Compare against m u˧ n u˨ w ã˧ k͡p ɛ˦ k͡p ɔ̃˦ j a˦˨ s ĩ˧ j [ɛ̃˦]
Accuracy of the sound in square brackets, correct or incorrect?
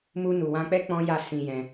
incorrect: ɛ̃˧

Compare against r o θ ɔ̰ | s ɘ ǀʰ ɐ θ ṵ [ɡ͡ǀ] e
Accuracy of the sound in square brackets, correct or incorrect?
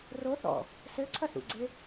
correct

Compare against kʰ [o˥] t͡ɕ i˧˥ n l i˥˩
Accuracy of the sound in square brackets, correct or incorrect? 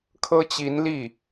incorrect: ɤ˥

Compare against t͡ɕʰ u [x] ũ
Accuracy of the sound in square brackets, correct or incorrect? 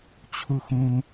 correct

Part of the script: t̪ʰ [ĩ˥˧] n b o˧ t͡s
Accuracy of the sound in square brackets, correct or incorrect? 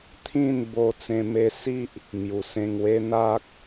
correct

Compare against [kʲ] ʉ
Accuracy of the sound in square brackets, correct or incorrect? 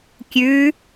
correct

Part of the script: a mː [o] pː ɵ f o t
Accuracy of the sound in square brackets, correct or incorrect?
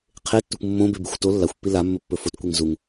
incorrect: ɵ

